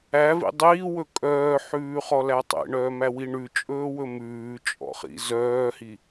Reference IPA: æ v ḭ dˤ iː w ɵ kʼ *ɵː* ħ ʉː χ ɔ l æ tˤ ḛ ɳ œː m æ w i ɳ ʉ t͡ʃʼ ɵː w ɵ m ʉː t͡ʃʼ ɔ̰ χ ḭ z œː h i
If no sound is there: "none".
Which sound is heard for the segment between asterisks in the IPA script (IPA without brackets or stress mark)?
œː